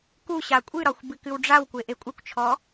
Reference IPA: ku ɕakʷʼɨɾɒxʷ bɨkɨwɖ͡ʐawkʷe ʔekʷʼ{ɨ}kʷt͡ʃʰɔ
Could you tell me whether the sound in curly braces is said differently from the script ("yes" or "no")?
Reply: no